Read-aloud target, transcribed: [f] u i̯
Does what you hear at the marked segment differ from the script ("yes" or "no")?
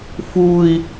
no